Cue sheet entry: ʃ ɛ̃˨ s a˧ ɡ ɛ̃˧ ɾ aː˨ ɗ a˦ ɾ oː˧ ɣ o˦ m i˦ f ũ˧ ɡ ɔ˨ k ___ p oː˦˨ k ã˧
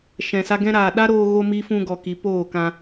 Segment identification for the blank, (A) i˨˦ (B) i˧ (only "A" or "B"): A